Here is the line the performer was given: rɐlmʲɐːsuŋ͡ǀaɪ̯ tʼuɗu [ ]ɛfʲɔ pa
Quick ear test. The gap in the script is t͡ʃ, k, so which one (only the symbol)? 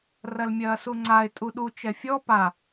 t͡ʃ